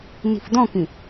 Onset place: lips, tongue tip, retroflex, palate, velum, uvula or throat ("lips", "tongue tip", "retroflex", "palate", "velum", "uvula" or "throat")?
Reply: tongue tip